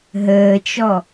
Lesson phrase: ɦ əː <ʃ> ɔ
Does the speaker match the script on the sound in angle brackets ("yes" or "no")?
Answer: no